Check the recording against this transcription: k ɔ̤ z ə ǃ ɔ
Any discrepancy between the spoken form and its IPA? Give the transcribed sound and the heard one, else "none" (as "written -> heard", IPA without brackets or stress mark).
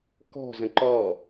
ə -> ə̃